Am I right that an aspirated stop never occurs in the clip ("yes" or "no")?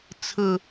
no